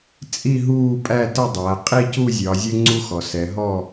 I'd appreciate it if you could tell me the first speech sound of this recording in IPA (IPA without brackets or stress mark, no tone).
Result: t͡sʼ